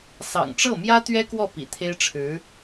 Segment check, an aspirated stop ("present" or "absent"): present